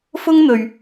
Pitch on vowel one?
high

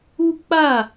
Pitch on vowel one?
high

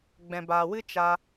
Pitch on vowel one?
low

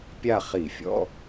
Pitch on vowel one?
falling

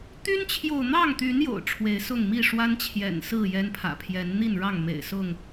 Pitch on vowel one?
high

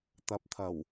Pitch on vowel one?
low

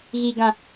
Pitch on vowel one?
low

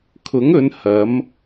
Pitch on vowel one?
rising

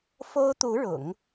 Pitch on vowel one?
high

